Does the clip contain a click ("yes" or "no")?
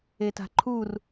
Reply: yes